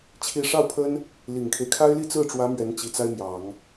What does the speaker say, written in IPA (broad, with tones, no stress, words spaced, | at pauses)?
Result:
t͡ɕʰi˥˧ ʂɑ˥˩ʊ̯pʰə˥n | li˨˩ŋkʰe˦ɪ̯kʰa˥ɪ̯ li˥˧t͡sɹ̩˥˩ʈ͡ʂwä˧˥ mɥɛ˧˥nt͡ɕi˨˩t͡sa˥ɪ̯mjɑ˨˩˦ŋ